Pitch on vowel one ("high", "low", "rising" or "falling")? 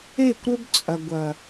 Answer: falling